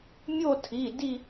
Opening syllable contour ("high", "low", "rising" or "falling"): falling